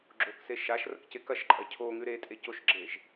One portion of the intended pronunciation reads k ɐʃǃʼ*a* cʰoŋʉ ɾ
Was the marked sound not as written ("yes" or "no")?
yes